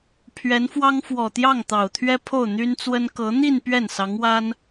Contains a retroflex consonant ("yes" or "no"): no